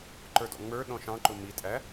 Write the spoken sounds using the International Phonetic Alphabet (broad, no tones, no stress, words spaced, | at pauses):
ǃə˞dɔ̰ŋ͡mə˞ ɗɔ̃ʃɑ̃ǃʊ mitʼæ